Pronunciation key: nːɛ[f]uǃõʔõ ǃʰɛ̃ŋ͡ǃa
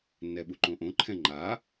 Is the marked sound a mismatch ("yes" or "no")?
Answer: yes